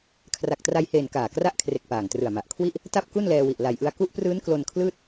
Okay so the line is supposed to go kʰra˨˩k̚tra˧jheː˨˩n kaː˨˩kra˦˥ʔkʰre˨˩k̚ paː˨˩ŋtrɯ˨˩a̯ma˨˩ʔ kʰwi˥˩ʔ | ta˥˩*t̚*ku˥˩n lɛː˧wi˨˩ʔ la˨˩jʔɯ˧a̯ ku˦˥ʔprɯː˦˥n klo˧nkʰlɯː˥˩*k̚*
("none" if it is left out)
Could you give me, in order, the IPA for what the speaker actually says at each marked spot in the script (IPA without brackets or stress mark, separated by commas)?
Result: p̚, t̚